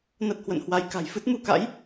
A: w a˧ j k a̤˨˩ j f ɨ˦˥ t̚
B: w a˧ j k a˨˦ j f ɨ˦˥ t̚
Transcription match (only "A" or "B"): A